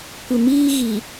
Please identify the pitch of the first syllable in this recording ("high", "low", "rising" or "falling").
low